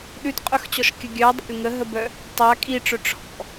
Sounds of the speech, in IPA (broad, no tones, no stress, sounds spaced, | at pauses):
ɗ ʉ t qʼ œ x t͡ɕ ɔ ʃ kʲ ə ɡʲ œ dˤ a̰ lʲ ŋ ə ɦ ə b œ | tˤ a kʼ i ʈ͡ʂ œ ʈ͡ʂʰ ɔ̰